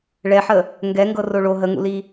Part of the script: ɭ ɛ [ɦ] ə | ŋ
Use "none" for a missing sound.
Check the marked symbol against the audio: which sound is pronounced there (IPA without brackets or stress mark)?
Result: ħ